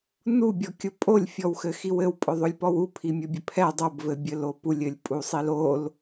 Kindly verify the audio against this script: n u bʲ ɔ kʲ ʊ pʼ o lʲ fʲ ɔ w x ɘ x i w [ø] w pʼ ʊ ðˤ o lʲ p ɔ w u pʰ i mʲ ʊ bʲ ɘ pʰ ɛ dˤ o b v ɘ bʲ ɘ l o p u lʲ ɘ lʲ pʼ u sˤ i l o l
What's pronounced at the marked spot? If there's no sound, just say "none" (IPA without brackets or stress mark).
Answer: ɘ